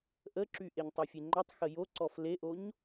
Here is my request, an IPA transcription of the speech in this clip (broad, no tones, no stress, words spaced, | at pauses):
ʔəǁy ʔeɲtˤofʲeŋ͡ǃɔtˤ xəjoǀɔf leʔoɲ